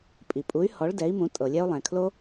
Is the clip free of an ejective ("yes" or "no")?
no